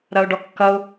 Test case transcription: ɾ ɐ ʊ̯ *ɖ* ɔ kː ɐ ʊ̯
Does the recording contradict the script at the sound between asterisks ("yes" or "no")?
no